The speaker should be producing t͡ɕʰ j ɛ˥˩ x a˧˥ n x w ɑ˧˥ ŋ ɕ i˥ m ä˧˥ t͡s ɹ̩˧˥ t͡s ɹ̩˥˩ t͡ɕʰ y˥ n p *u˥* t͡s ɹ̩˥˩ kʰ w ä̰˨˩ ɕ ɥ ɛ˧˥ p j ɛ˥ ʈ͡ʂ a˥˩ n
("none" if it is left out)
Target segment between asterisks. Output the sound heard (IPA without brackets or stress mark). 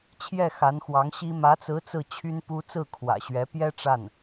u˥